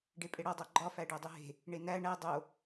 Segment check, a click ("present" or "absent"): present